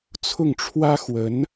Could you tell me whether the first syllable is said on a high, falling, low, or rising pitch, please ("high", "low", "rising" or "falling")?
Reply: falling